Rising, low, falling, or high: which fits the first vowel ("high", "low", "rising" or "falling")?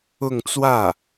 falling